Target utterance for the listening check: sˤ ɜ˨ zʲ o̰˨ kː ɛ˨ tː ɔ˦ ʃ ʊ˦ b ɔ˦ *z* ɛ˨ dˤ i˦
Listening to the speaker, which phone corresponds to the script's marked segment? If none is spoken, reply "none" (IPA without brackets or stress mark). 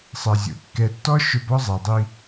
zˤ